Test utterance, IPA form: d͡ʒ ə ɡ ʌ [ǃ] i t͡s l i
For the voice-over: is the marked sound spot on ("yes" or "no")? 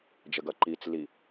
yes